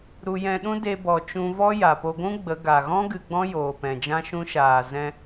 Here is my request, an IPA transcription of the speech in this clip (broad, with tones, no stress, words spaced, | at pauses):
ɾu˧ jɛ̃˧ɗũ˦ de˧bɔ˨ t͡ʃũ˧vɔ˦ ja˨po˧ɡʷũ˦ ɡ͡bə˨˦ ɡa˨ɣɔ̃˦ ɡɨ˧ɡ͡bɔ̃˦joː˨ pɛ̃˨d͡ʒã˦ʃũ˦ ʃaː˨zɛ̃˧